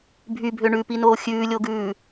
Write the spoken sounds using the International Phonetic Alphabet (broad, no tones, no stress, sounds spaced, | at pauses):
bʱ y bʱ ø ɳ ʉ p i n oː xʲ ʉː lʲ o ɡ ʉː